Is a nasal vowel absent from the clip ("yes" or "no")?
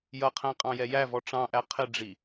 no